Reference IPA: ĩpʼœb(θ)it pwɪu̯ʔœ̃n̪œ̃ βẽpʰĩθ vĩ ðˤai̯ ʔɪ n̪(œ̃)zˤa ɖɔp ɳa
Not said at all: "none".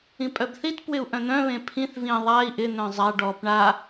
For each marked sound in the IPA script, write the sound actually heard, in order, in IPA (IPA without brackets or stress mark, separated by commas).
θ, œ̃